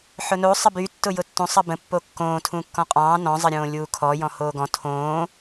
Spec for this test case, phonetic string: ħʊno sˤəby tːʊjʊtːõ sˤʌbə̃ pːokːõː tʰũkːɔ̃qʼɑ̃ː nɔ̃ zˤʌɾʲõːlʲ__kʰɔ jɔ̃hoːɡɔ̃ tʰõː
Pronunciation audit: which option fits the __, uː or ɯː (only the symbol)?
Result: uː